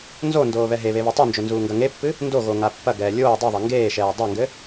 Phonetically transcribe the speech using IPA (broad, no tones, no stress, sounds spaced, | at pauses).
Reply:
n z o n d oː β ɛ ɦ e β e β i tˤ u n d͡ʒ o n z uː ŋ ɡ ɐ ŋ e pː ɨ | n d o ɣ o ŋ a pː ɐ ɡ ɛː lʲ oː dˤ u ðˤ e ŋ ɡ eː ʃ ɛː dˤ a ŋ ɡ ɘ